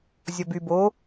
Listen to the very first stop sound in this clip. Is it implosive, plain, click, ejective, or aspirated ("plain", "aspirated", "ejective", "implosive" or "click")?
plain